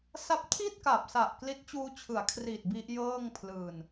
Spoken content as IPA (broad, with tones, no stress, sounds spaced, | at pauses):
s a˦˥ p̚ tʰ i˥˩ t̚ k a˨˩ p̚ s a˨˩ ʔ k l i˦˥ t̚ t͡ɕ uː˦˥ t͡ɕʰ ɯ˩˦ a̯ kʰ r iː˨˩ t̚ b i˦˥ ʔ j ɤː˥˩ ŋ pʰ l ɯː˨˩ n